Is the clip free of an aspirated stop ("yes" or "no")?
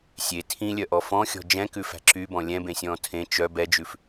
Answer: no